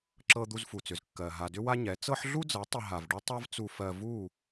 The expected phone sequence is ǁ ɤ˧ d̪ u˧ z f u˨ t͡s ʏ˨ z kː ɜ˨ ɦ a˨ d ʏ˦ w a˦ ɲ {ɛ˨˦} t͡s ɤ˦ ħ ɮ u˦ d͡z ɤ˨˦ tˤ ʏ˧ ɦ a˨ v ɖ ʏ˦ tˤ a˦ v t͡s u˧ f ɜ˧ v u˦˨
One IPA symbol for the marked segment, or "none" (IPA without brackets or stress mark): ɛ˨˦